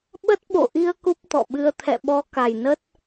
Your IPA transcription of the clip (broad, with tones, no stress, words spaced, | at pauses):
ɓə˦˥t̚ ɓo̰˧˨ʔi˧ə̯ ku˦˥p̚t̪ɔ̰˧˨ɓɨ˧ə̯ t̪ʰɛ̰˧˨ɓɔ˨˦ ka˨˩jnə˦˥t̚